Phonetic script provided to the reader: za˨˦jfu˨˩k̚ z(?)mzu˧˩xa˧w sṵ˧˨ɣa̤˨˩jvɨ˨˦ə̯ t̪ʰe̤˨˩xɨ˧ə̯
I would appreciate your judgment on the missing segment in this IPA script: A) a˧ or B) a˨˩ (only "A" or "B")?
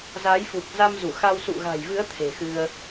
A